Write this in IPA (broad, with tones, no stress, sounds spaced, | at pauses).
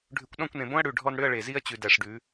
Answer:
ɖʱ ʉ˨ kʷ ɗ ɔ̃˦˨ kʷ n ẽ˨ b õ˦ ɐ̯ ɽ ʉ˨ ɖʱ ɔ˦ n ɽ ʏ˦ ɐ̯ ɭ e˨ z i˦ ɐ̯ t͡ɕ ʉ˨ d æ˨ ʂ ɖ ʉ˨˦